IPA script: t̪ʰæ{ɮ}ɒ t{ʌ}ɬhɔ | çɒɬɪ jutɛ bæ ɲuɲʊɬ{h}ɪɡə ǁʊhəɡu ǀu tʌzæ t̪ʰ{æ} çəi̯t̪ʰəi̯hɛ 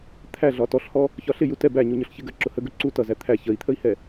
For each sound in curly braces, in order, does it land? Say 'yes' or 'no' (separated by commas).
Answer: yes, no, no, yes